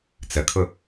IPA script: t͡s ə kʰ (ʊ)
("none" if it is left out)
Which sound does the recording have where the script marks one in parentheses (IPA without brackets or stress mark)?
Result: ʊ